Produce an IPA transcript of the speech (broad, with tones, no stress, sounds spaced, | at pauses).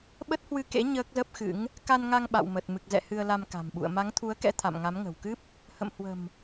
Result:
ɓ ə˦˥ t̚ h w ɨ˧ k ḛ˧˥ ɲ əː˦˥ k̚ z ə˦˥ p̚ x ɨ̰˧˥ ŋ | k a˧ n ŋ a˧ ŋ ɓ a̰˧˨ w m ə˨˩ t̚ m ɨ˨˩ k̚ z ɛ̰˧˨ h ɨ˧ ə̯ l a˧ m k a̤˨˩ m ɓ ṵ˧˨ ə̯ m a˨˦ ŋ t̪ʰ u˨˦ ə̯ k ɛ̰˧˥ t̪ʰ a̰˧˨ m ŋ a˨˦ m ŋ ə̤˨˩ w k ɨ˦˥ p̚ | h ə̰˧˨ m h w ə̤˨˩ m